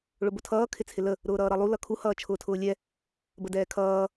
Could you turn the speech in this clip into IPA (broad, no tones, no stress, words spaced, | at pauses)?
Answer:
ɭʊbʊtʰʌː kʰɪt͡sʰɪlə | ɾʊːɾʌːɾʌlˠu lʌkʰu hʌːt͡ʃʰʊːtʰʊːlʲɛ | bədɛːkʰʌː